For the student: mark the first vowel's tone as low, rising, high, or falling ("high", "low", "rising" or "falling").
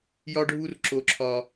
high